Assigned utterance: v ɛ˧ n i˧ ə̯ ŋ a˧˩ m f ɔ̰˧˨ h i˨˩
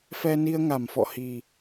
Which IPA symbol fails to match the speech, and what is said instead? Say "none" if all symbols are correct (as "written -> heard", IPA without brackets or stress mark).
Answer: v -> f